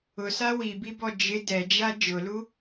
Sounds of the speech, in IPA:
ʊsa wibibɔ d͡ʒɪ dɛd͡ʒa d͡ʒʊlu

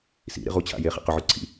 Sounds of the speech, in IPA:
sḭɾḭ ʁut͡ɕʰa̰ jeχḭ qɵʕʉ ǀʰḭ

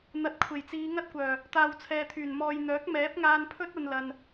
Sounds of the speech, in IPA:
n̪ɐ˨˥t̚kʷʰe˨˩jt͡siː˨˧ ŋɐ˥t̚kʷœː˨˩ | t̪aː˨wt͡sʰɛː˨t̪ʰyː˨˩n mɔː˨jn̪œː˨˥k̚ mɛː˨˥p̚ŋaː˧npʰɵ˥t̚ ɐ˧nlɐ˨n

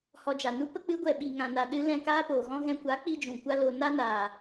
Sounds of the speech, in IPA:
hɔ˧d͡ʒa˨nu˦ pə˦ k͡pɨ˨˦ɡʷɛ˨ɓi˨ ŋã˨na˨ɗɨ˧ lɛ̃˦˨kaː˦poː˨ɣɔ̃˦ ɣɛ̃˧kʷa˨˦ k͡pi˦d͡ʒũ˨kʷa˦ lo˧ na˦naː˨

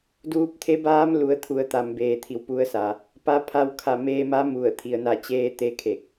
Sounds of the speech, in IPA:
duː˧p̚t̪ʰe˧˥baː˧˥m lu˩˧ə̯t̪ʰu˩˧ə̯t̪a˩m beː˩t̪ʰi˩wpu˩˧ə̯sa˩ | pa˧˥pʰa˧w kʰa˧˩meː˧ma˧˥ mu˧˩ə̯ t̪ʰi˩ə̯na˧˩t͡ɕeː˧t̪e˧ kʰe˧˩k̚

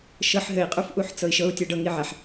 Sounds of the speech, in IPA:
ʃɤħ ɦɘi̯ qʼufʔuħt͡sɤi̯ʃɤu̯ tʲɤɖɤ ŋiʕaħ

